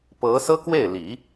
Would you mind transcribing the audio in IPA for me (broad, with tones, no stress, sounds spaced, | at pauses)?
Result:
p ɤ˧˥ s ɤ˥ k w e˥˩ ɪ̯ l i˨˩˦